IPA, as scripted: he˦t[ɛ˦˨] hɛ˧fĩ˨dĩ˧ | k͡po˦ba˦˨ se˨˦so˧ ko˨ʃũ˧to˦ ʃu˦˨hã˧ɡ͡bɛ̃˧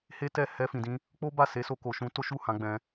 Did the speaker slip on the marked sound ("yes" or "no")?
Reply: no